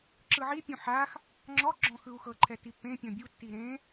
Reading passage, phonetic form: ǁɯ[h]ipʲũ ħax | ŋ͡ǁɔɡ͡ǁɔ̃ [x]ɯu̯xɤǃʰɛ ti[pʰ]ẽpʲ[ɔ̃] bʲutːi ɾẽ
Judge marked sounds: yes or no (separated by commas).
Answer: no, yes, no, yes